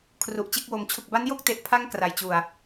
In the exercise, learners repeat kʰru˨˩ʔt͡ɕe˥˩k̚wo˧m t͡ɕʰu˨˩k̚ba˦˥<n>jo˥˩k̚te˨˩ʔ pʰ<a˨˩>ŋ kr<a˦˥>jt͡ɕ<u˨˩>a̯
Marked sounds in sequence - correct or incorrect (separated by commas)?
correct, incorrect, incorrect, correct